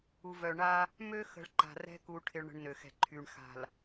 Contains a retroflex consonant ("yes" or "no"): yes